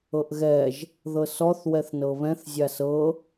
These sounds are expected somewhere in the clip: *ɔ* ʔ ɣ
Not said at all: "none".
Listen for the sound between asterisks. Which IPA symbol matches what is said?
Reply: ɤ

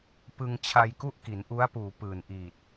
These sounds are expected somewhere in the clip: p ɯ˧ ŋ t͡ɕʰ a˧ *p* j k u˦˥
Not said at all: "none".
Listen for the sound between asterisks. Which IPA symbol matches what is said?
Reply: none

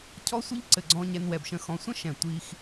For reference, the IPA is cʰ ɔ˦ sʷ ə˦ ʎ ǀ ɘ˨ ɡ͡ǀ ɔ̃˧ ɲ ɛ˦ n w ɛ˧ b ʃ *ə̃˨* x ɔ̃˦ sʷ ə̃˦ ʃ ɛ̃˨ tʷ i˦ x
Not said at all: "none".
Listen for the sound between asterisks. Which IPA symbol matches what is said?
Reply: ə̃˦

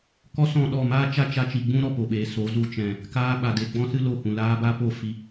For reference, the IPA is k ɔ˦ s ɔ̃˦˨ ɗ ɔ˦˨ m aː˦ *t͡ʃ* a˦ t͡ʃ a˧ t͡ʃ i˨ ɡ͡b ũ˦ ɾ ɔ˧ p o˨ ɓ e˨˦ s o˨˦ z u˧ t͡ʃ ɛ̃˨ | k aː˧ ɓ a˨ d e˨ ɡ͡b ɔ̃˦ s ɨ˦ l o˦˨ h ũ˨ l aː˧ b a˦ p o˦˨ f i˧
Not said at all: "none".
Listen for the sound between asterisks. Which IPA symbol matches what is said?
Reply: t͡ʃ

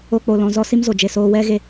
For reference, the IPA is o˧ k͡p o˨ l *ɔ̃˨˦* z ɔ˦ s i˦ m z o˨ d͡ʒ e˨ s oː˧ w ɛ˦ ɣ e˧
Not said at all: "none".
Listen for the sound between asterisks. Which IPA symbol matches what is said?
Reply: ɔ̃˨˦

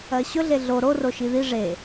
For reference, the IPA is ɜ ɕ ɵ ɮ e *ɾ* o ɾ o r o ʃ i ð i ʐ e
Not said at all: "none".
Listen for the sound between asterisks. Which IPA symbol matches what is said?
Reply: ɮ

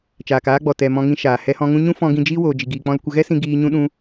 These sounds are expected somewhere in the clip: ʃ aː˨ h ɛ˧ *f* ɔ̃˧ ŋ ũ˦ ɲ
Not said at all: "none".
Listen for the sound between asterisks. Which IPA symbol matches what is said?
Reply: h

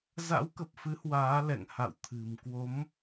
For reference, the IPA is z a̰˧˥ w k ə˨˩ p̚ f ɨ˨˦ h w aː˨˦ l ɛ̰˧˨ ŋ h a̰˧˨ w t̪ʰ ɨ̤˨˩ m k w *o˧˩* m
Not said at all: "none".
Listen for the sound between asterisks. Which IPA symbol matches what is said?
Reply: o˨˦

